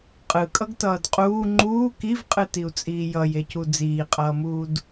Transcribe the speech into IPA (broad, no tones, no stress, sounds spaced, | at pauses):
qʼ ɯ kʼ ʌ ɡ t ʌː d qʼ uː ŋ͡ǃ uː k i v qʼ ɯ t i u̯ t͡sʼ iː j ʌ j e c u d͡z iː qʼ ʌː m uː d